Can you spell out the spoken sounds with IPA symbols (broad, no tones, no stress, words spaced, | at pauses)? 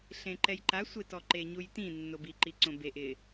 ɬẽǃɛjǃa sʷɪtɔǃe ɲujtĩ nːobiǃi ǀõbeʔ ɪ